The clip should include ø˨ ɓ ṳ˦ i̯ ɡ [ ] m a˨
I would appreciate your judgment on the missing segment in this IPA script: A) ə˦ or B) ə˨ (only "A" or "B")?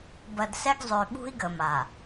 B